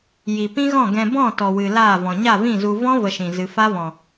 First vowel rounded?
no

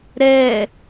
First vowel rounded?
no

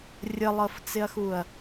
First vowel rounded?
no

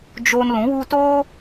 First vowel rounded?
yes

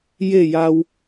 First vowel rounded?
no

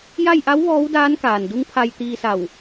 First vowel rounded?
no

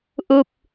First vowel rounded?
yes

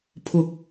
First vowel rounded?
yes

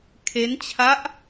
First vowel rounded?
no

